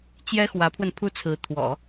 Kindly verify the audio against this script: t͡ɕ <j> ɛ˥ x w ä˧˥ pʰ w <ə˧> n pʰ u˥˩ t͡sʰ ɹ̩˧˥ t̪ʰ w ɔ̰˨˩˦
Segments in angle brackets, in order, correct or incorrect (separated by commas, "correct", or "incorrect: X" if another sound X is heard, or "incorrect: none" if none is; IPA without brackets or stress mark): correct, correct